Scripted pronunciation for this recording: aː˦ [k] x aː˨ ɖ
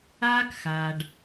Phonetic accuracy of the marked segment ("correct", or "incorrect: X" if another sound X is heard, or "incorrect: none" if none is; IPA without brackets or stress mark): correct